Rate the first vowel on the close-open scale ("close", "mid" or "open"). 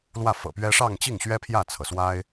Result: open